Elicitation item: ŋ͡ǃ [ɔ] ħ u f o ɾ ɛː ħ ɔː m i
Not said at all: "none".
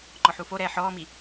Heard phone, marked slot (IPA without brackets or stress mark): ɔ